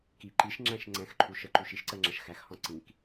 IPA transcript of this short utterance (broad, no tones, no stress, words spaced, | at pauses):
ki ǃiʃŋ͡ǁæ̃ʃ ŋ͡ǀɛ̃xǃʰu ʃəǃu ʃiʃǀɜŋ͡ǁɐʃ xæxhɔ̃ ǀĩk